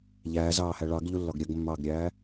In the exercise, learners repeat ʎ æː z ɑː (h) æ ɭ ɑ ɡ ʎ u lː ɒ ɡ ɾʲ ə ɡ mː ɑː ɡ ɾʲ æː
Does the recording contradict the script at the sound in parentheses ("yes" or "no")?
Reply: no